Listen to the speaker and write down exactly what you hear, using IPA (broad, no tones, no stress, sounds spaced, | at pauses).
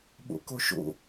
ɓ o̰ k o ʃ o̰